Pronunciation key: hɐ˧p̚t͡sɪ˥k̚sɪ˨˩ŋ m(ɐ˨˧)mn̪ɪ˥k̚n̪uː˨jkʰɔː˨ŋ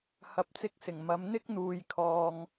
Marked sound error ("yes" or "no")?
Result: no